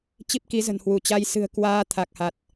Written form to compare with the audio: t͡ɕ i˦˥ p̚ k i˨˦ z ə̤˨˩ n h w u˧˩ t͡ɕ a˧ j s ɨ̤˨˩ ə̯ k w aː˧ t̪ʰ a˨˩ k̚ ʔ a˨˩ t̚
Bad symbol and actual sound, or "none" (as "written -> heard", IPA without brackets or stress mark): ʔ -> h